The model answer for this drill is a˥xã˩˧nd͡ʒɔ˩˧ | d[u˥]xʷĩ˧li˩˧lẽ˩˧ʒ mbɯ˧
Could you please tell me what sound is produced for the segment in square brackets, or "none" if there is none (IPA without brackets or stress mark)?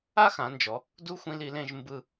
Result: u˥